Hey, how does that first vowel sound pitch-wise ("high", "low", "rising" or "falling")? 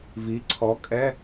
rising